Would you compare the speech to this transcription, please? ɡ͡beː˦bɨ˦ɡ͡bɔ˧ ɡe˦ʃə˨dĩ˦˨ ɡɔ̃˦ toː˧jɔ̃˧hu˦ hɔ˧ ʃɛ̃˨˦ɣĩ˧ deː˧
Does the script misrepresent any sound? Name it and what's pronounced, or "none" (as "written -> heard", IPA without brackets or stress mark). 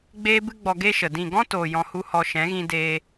none